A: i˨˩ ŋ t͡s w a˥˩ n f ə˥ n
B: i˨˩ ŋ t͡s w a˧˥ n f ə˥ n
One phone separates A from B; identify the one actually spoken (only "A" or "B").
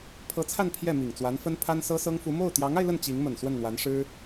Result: B